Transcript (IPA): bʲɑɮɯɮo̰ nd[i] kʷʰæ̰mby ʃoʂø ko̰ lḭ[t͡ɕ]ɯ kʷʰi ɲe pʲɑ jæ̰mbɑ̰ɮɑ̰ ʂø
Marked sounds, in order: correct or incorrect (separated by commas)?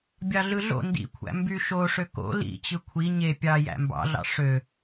incorrect, correct